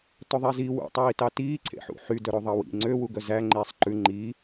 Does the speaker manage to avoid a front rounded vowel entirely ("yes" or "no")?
no